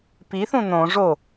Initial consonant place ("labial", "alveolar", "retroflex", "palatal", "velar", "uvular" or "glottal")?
labial